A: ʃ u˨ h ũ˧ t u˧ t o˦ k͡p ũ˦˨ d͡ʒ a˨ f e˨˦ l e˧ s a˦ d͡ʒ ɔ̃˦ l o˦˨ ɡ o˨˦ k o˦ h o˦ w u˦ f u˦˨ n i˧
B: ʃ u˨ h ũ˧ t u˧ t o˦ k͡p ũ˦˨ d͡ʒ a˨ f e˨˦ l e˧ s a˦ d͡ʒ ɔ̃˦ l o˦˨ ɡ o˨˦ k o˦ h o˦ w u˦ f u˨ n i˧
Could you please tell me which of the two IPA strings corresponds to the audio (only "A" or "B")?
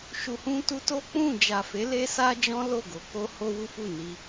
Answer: A